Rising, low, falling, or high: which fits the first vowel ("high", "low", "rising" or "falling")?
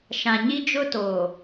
low